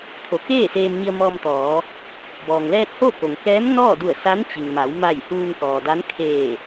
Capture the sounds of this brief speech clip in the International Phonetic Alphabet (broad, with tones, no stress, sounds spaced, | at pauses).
t̪ʰ o˩˧ k eː˥˨ s eː˧ m ɲ i˧ ə̯ m ɔː˧ m t̪ ɔː˩˧ | b ɔː˩ ŋ l ɛː˧ t̚ h o˥˨ k o˩ ŋ k ɛː˧˥ m n ɔː˥˨ d u˧˩ ə̯ s a˧˥ n t͡ɕ i˩ ŋ m a˩˧ w m a˧˩ j h uː˧ ŋ k ɔː˩ d a˧˥ n kʰ eː˧˩